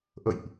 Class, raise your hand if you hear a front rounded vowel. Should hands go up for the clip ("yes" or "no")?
no